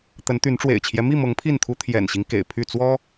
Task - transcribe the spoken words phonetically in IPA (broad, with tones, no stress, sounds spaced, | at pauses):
t̪ ə˨˦ n t̪ y˨˦ n ʈ͡ʂ w ḛ˨˩ ɪ̯ t͡ɕʰ j ɛ˦ m i˥˨ m ɤ˨˦ ŋ pʰ i˥˨ n t̪ʰ u˦ t̪ʰ j ɛ̰˨˩ n ɕ i˦ ŋ k ḛ˨˩ ɪ̯ pʰ y˥˨ t͡s w ɔ˦